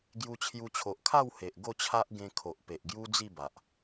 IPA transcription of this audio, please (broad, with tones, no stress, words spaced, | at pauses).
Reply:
ɡju˧t͡ɕʰju˧t͡ɕʰo˨ʔ kʰa˥˧whe˨ʔ ɡo˥˧t͡ɕʰa˦ʔ ɡẽ˧kʰo˨ʔpe˨ʔ ɡju˦d͡zi˥˧ ba˨ʔ